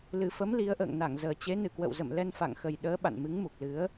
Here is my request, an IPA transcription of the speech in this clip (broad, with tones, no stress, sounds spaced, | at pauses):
l ɨ˨˩ f ə˨˦ m l i˨˦ ə̯ ʔ ə̰ː˧˨ ŋ n a˧˩ ŋ z əː˨˩ t͡ɕ e˨˦ n ɨ˨˩ k w ə̰˧˨ w z ə̰˧˨ m l ɛ˧ n f a̰˧˨ ŋ x ə˨˩ j ɗ əː˨˦ ɓ a̰˧˨ n m ɨ˨˦ ŋ m u˨˩ k̚ l ɨ˨˦ ə̯